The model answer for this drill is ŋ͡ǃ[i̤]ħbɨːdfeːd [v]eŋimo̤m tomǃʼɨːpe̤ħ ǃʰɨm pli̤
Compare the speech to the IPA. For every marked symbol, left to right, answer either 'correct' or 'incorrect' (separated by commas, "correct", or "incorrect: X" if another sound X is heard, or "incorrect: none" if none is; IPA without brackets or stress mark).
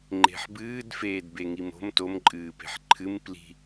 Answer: incorrect: e̤, incorrect: b